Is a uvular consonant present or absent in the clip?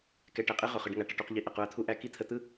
present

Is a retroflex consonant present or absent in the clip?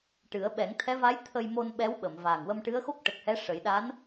present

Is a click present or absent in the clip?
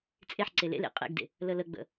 present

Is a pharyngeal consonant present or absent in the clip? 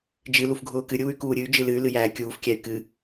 absent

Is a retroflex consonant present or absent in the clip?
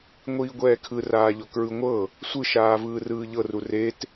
absent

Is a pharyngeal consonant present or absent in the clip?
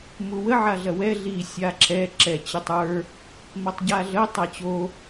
present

